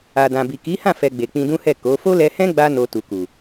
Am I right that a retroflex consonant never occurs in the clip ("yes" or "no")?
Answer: yes